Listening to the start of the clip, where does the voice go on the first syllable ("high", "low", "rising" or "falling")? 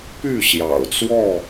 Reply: falling